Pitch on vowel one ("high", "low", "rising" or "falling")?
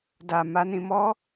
low